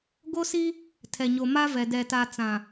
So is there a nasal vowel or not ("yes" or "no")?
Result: yes